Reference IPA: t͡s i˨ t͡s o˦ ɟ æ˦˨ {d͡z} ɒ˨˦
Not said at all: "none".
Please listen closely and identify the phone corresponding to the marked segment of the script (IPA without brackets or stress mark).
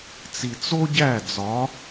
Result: d͡z